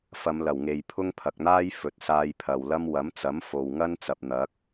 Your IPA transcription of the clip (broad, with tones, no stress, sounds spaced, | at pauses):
f ɐ˨˧ m l ɐ˨˩ w ŋ e˨ j pʰ ʊ˥ ŋ pʰ ɐ˨ k̚ n̪ aː˥ j f ɵ˨ t̚ s aː˧ j pʰ ɐ˨ w l ɐ˥ m w ɐ˨˥ m t͡s ɐ˨˥ m f o˨ w ŋ ɐ˥ n t͡s ɐ˨ p̚ n̪ ɐ˨˥ k̚